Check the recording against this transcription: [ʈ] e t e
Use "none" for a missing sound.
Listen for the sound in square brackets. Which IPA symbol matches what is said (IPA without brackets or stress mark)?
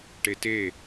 ʈ